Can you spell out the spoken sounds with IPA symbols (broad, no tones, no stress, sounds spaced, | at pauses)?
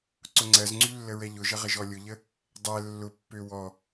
ǀ ʊ ŋ͡ǀ ɜ z ŋ͡ǀ y lː ə ɹ ɛ ʎ ʊ ʒ ə ʁ ə ʒ ɔ lʲ ʊ ʎ ə | dˤ ɛ lː ʊ pː ø w ɔ